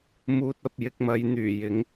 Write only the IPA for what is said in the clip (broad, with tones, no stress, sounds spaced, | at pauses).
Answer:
m uː˧ t̚ ɐ˧ p̚ j ɪ˨ k̚ m ɐ˨˧ j n̪ yː˨˩ j ɪ˨˥ ŋ